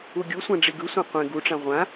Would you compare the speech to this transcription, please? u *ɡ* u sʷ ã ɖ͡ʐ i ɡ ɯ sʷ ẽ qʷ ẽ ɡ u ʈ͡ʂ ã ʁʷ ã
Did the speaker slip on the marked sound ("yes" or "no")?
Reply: yes